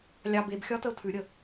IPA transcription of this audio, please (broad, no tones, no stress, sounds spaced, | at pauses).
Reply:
lʲ ɑ b e b xʲ ɒ t ə ʊ̯ tʰ ʉ ɾʲ ə